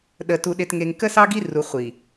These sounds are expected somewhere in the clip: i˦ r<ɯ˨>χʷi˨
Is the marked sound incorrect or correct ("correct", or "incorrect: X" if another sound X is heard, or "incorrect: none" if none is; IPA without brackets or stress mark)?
incorrect: u˨